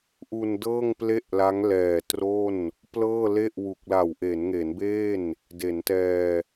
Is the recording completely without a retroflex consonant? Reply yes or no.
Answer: yes